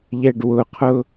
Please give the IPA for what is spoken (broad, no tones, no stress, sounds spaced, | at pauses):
ʎ ɛ ɖ w ʊ qʰ ʊ